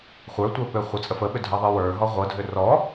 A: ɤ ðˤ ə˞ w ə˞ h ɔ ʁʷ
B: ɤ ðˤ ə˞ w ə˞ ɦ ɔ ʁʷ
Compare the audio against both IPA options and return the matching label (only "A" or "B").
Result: B